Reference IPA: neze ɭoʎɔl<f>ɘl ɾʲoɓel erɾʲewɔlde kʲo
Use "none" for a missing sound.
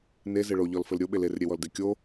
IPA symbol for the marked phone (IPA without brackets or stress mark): f